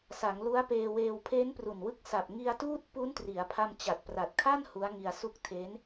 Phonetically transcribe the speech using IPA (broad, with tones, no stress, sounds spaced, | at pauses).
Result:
s a˩˦ ŋ l u˦˥ a̯ p eː˧ w eː˧ w pʰ eː˦˥ n p r u˨˩ n w ɯ˦˥ k̚ s a˨˩ p̚ ŋ i˧ a̯ t uː˥˩ t̚ p u˦˥ n t r i˩˦ a̯ pʰ a˧ m t͡ɕ a˨˩ t̚ p r a˨˩ t̚ kʰ a˥˩ n h u˦˥ a̯ ŋ i˧ a̯ s u˥˩ k̚ tʰ e˦˥ n